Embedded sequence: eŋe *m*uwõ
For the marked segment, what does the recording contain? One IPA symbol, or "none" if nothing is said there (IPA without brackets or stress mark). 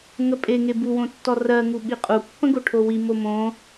b